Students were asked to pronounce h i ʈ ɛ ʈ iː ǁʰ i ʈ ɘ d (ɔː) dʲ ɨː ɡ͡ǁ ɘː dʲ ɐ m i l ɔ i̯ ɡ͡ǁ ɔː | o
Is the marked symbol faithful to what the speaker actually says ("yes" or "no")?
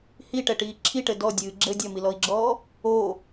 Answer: no